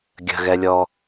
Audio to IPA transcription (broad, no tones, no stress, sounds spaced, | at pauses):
ɡʲ ə̤ ɣ ɛ lʲ ɔ